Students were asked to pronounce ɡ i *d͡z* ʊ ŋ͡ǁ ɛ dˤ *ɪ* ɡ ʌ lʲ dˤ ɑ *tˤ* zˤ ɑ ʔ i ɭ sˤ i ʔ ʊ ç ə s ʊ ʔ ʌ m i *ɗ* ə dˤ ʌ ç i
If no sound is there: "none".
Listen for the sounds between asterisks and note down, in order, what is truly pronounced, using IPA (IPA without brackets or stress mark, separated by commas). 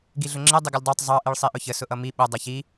ɮ, ɪ, tˤ, ɓ